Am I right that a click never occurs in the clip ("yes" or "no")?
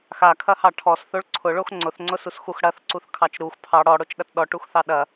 no